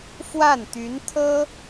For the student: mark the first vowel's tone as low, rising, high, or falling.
falling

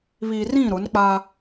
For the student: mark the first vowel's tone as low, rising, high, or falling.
low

